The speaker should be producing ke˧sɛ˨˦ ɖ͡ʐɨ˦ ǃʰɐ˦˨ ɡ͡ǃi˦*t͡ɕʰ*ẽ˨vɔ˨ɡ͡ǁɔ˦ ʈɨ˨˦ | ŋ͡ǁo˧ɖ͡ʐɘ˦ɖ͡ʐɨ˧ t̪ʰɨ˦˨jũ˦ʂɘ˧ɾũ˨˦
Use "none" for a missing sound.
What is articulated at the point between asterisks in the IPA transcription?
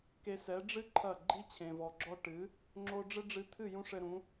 t͡ɕʰ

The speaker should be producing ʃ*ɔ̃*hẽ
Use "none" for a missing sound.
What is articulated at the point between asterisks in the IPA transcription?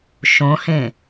õ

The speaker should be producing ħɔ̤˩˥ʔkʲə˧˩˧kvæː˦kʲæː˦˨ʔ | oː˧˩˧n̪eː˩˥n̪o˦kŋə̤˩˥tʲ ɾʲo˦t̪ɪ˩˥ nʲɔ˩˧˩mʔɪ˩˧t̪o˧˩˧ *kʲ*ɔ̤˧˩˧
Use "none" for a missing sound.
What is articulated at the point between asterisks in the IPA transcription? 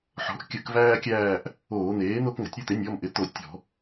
tʲ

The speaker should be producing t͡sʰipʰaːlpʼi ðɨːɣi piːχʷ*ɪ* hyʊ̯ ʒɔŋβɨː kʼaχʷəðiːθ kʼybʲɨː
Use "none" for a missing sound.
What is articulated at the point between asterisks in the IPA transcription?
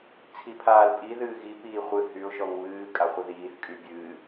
ɨ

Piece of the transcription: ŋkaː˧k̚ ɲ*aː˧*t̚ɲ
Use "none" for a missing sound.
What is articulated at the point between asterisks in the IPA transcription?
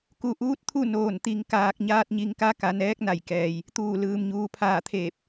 aː˧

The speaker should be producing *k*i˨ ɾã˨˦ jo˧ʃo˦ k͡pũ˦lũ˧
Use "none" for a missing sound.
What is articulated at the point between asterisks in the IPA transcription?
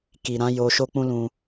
k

